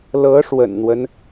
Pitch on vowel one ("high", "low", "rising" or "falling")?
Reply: rising